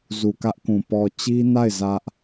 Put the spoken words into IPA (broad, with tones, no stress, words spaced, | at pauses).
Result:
zu˨kä˦ʔkũ˨ pɔ˨ t͡ɕi˦na˦˨ɪ̯ zä˦ʔ